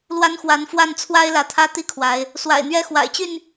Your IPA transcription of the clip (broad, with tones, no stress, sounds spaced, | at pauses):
l w a˦ n x w a˨˦ n f w a˥˨ n t͡sʰ w a˦ ɪ̯ l ä˨˦ t̪ʰ ä˦ t̪ i˥˨ kʰ w a˨˦ ɪ̯ | s w a̰˨˩ ɪ̯ n̪ ɥ ɛ˦ x w a̰˨˩ ɪ̯ t͡ɕ y˥˨ n